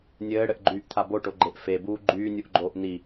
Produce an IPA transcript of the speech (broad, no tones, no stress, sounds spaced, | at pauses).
nʲ ɘː ɽ ɘ ʔ ɡ͡ǃ yː ʔ t̪ʰ a b o ʈ o ɡ͡ǃ e ʔ f e b uː ɡ͡ǃ yː nʲ u ʔ ɡ͡ǃ oː ʔ n i